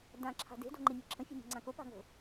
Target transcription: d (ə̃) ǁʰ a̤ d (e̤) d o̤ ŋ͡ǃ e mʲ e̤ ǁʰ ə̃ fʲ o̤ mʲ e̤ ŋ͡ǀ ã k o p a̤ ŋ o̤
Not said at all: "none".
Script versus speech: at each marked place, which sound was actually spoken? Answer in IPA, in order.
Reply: ã, e̤

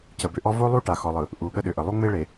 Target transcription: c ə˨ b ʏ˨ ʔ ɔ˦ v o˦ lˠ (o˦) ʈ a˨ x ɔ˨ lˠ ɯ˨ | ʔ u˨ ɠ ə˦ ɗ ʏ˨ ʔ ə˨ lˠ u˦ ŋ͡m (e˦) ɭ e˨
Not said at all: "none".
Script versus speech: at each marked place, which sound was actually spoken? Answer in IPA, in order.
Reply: u˦, e˦

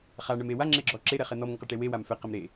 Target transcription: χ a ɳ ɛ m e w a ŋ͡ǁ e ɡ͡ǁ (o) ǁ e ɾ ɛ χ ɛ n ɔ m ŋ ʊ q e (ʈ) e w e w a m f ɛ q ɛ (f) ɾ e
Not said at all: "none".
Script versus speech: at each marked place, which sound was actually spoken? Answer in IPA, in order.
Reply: ɔ, ʈ, m

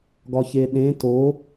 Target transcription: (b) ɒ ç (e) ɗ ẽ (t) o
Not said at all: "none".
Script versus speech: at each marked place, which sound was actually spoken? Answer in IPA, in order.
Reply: ɡ, e, t

